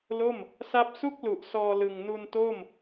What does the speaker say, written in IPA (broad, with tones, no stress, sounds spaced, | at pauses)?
l o˥˩ m | s a˦˥ p̚ s u˥˩ k̚ l u˨˩ ʔ s ɔː˧ l ɯ˨˩ ŋ n u˧ n t o˥˩ m